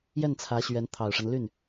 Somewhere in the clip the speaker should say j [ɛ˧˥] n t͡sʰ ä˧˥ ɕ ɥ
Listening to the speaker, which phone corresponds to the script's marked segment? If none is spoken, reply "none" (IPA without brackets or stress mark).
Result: ɛ˥˩